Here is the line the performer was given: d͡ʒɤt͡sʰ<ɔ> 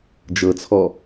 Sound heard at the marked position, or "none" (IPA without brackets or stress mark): ɔ